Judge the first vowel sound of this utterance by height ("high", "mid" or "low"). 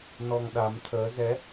mid